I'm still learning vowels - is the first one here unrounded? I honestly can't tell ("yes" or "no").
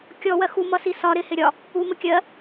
no